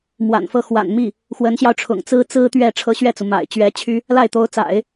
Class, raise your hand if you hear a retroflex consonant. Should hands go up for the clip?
yes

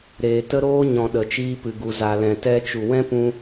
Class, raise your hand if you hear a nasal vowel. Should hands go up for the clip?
yes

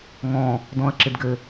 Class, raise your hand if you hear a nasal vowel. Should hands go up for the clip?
yes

